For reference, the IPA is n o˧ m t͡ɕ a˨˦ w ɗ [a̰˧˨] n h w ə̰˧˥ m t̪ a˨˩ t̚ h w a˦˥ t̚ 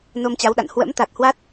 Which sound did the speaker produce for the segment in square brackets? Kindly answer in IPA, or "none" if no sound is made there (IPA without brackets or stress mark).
a̰˧˨